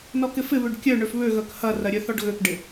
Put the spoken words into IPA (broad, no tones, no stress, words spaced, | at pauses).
nɔkɪfɪβøɖ kʲœ ɳøfβøɣœk hɐrɐ ɾʲœθɔɖɣøkɖɪ